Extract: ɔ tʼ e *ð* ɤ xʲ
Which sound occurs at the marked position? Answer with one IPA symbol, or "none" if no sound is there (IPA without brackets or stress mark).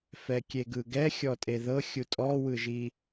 ð